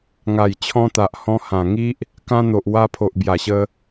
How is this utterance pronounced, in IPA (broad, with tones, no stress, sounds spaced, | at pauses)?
ŋ a˨˩ j t͡ɕʰ ɔ̃˧ t̪ a˨ ʔ h ɔ̃˧ h ã˨˩ ŋ i˦ ʔ | k ã˧ n̪ o˨ ʔ w a˧ pʰ o˨ ʔ b j a˨˩ ɕ ə˧